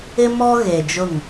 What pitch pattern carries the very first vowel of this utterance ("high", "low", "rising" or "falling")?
high